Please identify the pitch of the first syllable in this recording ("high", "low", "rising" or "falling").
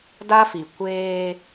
high